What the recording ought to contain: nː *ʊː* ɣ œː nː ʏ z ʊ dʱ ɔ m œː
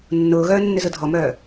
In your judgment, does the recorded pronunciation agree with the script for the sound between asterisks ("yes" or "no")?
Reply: yes